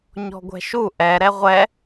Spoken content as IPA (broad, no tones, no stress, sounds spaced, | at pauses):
ɲ ɔ̤ ɡʷ ɛ̤ ʃ u ʔ ɛ ɾ ɛ ʁʷ ɛ